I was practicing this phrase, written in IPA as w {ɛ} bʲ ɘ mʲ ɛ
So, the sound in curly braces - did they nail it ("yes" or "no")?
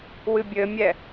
no